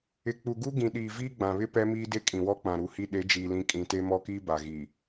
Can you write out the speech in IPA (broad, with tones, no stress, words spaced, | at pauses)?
ɪ˨k͡pu˨ɡu˦ ɡĩ˨ɗiː˨ viː˦ɡ͡bã˨βɪ˦ pɛ˦miː˦ de˦kʼĩ˨wɔ˦ k͡pã˨ɾu˨hi˦ ɗe˨˦d͡ʒiː˨lĩ˨ kʼĩ˨te˦mɔ˦kiː˦ ba˨ ɣi˨